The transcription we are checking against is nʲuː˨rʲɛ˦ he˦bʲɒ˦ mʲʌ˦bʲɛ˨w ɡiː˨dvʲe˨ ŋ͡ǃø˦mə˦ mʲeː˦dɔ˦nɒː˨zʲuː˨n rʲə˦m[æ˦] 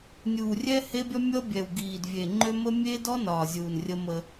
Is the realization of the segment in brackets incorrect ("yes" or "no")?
yes